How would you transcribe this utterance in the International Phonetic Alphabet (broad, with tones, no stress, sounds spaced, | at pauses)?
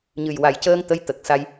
ɲ ɨ˨˩ j w a˨˩ j c əː˧ ŋ t̪ ə˧˥ j t̪ ə˨˩ k̚ s a˧ j